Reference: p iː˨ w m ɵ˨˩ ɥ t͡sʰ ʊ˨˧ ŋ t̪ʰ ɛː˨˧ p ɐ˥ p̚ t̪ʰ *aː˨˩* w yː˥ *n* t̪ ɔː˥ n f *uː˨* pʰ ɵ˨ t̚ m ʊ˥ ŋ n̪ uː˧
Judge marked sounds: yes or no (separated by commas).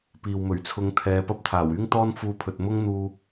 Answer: yes, no, no